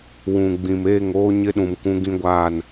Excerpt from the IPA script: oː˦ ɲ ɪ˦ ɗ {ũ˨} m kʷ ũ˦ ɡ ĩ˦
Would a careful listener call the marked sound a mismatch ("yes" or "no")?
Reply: no